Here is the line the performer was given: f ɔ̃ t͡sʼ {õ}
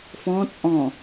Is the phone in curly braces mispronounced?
yes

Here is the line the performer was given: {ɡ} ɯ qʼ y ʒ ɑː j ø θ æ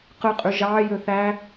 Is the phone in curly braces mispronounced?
yes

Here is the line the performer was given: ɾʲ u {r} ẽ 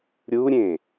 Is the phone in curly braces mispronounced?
yes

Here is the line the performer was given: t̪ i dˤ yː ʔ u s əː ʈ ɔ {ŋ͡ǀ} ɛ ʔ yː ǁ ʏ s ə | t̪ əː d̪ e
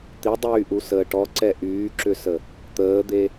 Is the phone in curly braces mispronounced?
yes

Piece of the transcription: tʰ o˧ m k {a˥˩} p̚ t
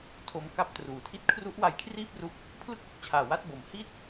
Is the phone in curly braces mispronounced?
no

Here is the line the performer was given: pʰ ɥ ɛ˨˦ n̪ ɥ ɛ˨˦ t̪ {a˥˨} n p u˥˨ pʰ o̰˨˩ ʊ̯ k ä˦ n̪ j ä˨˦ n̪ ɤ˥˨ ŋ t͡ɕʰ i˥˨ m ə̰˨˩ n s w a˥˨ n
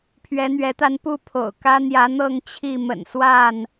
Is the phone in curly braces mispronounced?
yes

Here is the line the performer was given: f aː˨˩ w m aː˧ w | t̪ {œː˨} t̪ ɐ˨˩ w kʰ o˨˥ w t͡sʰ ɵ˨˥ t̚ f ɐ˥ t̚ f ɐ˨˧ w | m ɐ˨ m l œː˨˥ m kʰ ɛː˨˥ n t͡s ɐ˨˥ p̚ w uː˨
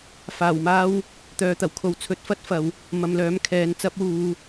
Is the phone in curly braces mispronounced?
no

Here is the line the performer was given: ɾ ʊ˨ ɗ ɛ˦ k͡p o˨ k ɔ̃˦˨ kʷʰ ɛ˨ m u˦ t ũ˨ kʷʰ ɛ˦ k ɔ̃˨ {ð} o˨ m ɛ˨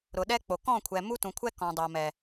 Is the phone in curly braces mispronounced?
yes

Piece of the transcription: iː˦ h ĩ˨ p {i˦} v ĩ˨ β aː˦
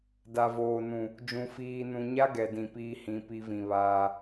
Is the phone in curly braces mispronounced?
no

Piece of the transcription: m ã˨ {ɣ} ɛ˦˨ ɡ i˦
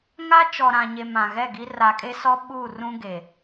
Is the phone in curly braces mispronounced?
no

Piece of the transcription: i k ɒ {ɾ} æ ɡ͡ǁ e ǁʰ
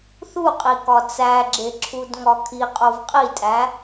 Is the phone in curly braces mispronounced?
yes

